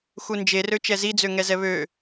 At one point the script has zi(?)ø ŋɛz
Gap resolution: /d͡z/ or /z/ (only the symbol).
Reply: d͡z